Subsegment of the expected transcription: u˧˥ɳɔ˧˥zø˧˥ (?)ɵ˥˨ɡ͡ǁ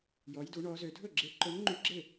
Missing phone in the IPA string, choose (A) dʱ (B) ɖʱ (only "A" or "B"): A